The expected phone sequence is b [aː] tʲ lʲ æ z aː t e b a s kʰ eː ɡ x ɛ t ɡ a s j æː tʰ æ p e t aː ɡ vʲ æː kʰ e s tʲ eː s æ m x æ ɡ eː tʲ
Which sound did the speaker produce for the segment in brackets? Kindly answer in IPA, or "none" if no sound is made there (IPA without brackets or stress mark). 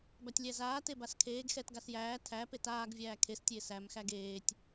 a